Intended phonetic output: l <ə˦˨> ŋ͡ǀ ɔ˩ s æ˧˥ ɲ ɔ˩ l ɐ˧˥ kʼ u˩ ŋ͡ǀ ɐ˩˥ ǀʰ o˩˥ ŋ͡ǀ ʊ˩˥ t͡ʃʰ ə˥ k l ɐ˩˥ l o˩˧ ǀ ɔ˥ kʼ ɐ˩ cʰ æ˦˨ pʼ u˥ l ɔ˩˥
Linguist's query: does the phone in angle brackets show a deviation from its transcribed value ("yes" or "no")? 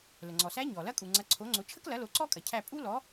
yes